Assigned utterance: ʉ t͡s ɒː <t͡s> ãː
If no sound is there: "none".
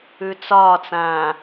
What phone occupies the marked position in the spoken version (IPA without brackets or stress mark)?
t͡s